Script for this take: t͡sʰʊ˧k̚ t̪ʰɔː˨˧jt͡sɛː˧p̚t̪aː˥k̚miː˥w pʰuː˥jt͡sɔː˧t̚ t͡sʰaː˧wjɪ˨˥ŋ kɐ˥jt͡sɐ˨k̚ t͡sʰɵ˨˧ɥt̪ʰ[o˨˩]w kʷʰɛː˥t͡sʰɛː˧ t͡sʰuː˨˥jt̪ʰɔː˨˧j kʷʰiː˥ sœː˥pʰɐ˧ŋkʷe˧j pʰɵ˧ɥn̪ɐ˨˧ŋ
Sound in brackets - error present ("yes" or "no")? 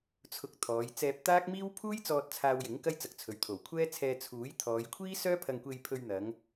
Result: no